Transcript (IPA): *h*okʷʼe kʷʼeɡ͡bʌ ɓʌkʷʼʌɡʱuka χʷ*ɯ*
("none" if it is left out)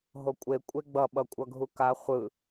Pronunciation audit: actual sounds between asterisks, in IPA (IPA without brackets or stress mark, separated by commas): ɦ, ɯ